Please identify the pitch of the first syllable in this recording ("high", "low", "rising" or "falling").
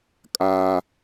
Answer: high